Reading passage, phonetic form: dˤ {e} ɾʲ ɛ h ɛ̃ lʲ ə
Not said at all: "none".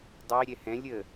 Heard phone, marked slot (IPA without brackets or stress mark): e